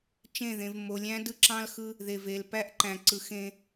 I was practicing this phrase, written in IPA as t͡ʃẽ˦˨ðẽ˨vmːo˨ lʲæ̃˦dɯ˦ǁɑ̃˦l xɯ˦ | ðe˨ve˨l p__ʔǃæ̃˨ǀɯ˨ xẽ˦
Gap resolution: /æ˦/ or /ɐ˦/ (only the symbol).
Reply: æ˦